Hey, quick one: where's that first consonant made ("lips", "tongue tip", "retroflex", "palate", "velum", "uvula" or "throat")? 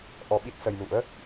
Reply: throat